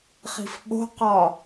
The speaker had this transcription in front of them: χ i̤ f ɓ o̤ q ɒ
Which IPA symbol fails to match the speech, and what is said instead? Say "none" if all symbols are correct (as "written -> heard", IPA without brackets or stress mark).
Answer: none